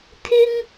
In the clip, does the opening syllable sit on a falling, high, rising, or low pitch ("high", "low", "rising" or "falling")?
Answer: high